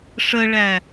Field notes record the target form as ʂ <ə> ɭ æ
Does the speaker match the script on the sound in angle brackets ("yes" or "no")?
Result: yes